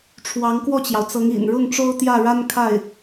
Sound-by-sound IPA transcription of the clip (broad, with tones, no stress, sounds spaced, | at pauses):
ʈ͡ʂʰ w ɑ˧˥ ŋ k w ɔ˥˩ t͡ɕ j ɑ˩ ʊ̯ t͡s ɤ˧˥ ŋ ḭ˨˩ n ɻ ʊ˥˩ ŋ ʈ͡ʂ o˥ ʊ̯ t̪ j ä˥˩ ɻ a˥ n kʰ a˥˩ ɪ̯